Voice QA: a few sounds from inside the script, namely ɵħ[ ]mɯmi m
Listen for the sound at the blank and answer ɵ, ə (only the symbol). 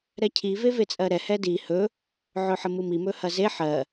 ə